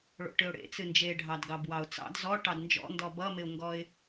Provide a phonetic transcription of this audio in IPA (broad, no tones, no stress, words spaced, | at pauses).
ɭo̰ʈɨʊ̯ɽḛ t͡sɨnd͡ʒeɖʱɑdɡɑb wɑʊ̯t͡sɑ̰d zɔ ʈɑdnd͡ʒɔ̰ndɔ bʌmɪʊ̯ŋɡɔɪ̯